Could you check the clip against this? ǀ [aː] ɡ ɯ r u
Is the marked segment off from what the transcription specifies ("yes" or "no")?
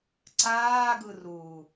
no